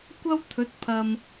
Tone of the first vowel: high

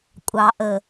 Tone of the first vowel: low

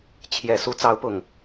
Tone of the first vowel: low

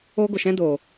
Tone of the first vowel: high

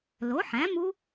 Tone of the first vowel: rising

